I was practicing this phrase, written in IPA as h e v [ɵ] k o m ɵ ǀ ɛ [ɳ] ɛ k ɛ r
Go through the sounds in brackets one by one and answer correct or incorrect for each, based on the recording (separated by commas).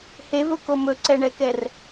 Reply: correct, correct